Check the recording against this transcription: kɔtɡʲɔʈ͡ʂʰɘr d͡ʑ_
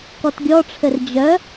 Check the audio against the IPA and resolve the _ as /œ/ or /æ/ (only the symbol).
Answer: œ